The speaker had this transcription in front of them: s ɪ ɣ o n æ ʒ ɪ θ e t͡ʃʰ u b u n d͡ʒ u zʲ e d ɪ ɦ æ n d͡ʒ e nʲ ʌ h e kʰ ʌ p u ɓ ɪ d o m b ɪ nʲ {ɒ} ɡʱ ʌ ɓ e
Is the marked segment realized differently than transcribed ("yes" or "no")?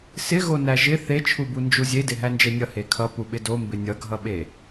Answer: yes